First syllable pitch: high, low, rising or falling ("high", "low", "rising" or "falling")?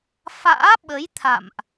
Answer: rising